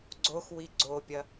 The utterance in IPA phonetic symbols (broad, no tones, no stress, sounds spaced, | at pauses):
ɡ͡ǀ o x w i ɡ͡ǀ o pʲ ɐ